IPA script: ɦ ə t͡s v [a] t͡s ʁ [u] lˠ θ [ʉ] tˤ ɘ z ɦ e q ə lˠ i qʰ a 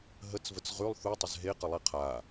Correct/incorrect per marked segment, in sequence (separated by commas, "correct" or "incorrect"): incorrect, incorrect, incorrect